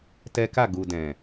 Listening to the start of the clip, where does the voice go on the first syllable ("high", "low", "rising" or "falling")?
high